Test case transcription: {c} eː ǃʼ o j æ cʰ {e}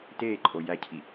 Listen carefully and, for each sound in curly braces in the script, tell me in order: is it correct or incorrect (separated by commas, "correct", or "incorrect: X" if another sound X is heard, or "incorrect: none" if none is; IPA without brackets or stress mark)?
incorrect: t, incorrect: i